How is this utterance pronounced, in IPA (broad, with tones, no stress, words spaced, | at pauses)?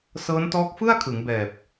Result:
sɤː˦˥ntɔː˦˥k̚fɯ˥˩a̯kʰɯ˩˦ŋ bɛː˨˩p̚